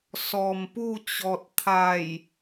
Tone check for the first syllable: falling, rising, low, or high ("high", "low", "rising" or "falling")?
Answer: low